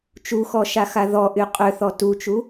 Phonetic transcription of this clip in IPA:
t͡ʃ u x ɔ ʃ a x a ð ɔ ʔ y qʼ ø θ ɔ t u t͡ʃ u

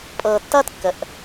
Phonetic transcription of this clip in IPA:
pʼ ɤː˨ tː ʌː˦ t kː ə˨ ʔ

